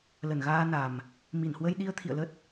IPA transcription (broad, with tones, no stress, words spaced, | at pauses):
lə˧˩nɣaː˧na˨˩m | mi˧˩nhwə˧jɗi˧ə̯ t̪ʰḭ˧˨ə̯lə˦˥t̚